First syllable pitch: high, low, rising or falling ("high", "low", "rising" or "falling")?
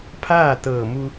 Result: falling